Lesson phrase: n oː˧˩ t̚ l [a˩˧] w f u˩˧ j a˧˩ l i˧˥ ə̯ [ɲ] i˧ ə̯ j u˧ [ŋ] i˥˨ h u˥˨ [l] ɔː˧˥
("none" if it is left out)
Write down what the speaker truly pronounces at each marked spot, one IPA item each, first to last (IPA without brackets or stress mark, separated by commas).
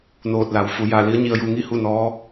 a˩, ɲ, ŋ, n